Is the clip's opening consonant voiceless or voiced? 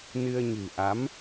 voiced